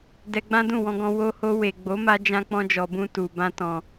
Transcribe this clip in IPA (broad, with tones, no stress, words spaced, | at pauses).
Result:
dɛ˧ɡ͡bã˦dũ˦˨ wɔ̃˧ɡɔ̃˧ wo˧ho˧ we˨ɡ͡bo˨˦ma˧d͡ʒã˧ k͡pɔ̃˧d͡ʒɔ˨bũ˧ tu˨bã˧tɔ̃˨